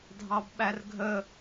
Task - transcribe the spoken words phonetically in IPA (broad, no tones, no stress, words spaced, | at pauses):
dʱɑbɓærɡʱə